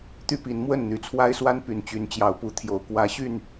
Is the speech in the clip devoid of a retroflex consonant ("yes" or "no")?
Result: yes